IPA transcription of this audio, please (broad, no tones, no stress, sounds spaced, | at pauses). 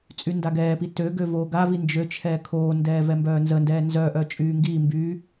t͡sʼ y n d a ɡ ɛː p i t ø ɡ ø v oː ɡ a v i n d͡ʒ ø t͡ʃʰ ɛː kʰ oː n d ɛː v ɛ m b œː n z ə n d ɛː n z œ ʔ œ t͡ʃʼ yː ŋ ɡ iː m b yː